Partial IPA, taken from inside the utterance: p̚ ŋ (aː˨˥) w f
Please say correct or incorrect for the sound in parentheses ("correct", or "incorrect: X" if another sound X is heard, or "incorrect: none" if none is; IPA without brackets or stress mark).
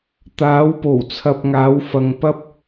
incorrect: aː˨˧